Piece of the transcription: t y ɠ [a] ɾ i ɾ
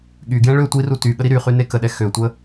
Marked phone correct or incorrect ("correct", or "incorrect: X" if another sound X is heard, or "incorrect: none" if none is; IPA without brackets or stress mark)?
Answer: incorrect: ə